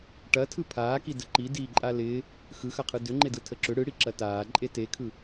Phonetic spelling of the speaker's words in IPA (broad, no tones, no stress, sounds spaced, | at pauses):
ʈ ɐ tʰ ɯ pʰ aː k i d ə ǃ i d iː ǃʼ a l ɪː | x ɯ x ɐ qʰ ɯ d ʏ ŋ͡ǃ e d ɯ tʰ ə ǁ ʏ ɽ ɯ ɽ i ǁ ɐ t aː ǃʼ e t e kʰ ɯ